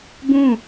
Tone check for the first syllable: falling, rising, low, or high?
falling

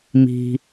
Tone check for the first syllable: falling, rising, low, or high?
low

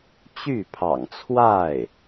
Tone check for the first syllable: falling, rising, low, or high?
falling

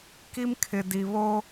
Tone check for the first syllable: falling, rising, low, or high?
high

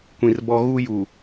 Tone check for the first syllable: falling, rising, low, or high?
low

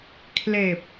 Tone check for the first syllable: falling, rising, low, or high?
low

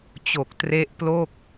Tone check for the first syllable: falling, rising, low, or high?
low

